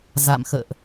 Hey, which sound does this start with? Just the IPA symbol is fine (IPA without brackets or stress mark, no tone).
z